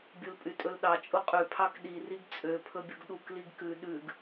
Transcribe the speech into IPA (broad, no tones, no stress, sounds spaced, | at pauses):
bʲ u l pʼ y tʼ ɵ l ɗ ɑ t͡ʃʼ u qʼ ʉ pʰ ɑ k ɗ i r i ɡ t͡sʼ ø pʰ ɵ bʲ u ɡ ɗ u k l i ɡ k ʉ ɗ ʉ ɡ